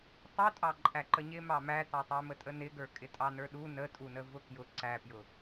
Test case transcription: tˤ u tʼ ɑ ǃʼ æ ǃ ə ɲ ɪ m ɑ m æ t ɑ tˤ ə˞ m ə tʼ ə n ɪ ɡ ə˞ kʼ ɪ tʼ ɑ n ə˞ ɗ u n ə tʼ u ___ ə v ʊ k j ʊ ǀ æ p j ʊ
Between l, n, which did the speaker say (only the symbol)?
n